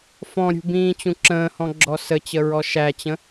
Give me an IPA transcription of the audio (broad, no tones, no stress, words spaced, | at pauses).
fɔ̃ɾʲṳ bĩːt͡ɕũǁə̃ːhɔ̃ ɡ͡ǁɔsət͡ɕə ɹɔʃæt͡ɕə̃